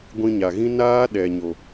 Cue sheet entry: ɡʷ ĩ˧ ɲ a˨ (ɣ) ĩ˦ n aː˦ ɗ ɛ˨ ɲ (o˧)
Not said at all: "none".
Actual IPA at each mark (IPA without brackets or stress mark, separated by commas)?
ɣ, o˨